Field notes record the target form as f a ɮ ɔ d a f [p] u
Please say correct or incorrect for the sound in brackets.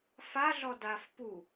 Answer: correct